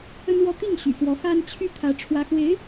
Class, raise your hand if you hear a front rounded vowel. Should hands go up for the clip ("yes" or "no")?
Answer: yes